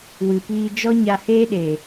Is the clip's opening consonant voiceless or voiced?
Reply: voiced